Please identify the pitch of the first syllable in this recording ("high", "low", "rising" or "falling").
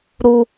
high